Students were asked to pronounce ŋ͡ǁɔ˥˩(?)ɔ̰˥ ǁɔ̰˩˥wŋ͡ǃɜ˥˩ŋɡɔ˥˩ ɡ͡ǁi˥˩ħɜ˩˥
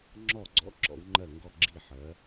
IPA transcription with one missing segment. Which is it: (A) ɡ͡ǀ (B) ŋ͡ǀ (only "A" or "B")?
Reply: A